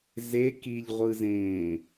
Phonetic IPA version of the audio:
ze kiʎʁʷɯzẽː

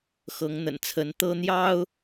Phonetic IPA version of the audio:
xɤ˨˦ŋn̪ə̰˨˩nt͡sʰə˨˦n t̪ɤ˦n̪jɑ˦ʊ̯

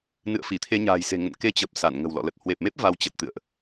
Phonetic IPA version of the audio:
nɨ̰˧˨ə̯fi˧˩t̪ʰe˧ɲa̤ː˨˩j se̤˨˩ŋə̰˧˨n ke˧t͡ɕə˨˩p̚ sa˧˩nŋə̤˨˩w lɔ̰˧˨lə˨˩t̚ hwe˨˩p̚me˦˥p̚ va˨˦wt͡ɕə˨˩t̚t̪ɨ̰˧˨ə̯ʔ

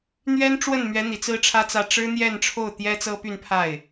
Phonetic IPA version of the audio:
n̪ɥɛ˥nʈ͡ʂwə˥˩nmɥɛ˧˥ n̪i˨˩t͡sɹ̩˥ʈ͡ʂʰä˥t͡sä˥˩ ʈ͡ʂɻ̩˥n̪jɛ˥˧nʈ͡ʂʰo˥˩ʊ̯ t̪jɛ˥t͡sɤ˥py˥˧n pʰa˥˩ɪ̯

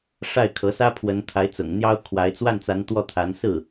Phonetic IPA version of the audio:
ʂa˥˩ɪ̯kʰɤ˧˥sä˥pʰwə˧˥n t̪ʰa˧˥ɪ̯t͡sʊ̰˨˩ŋn̪jɑ˥ʊ̯ kʰwa˧˥ɪ̯ t͡swa˥˩nt͡sa˧˥n t̪wɔ˥˩t̪ʰa˧˥n sɹ̩˥˩

